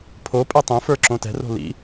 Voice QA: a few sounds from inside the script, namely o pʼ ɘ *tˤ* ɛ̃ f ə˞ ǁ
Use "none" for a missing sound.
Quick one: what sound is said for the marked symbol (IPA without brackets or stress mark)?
tˤ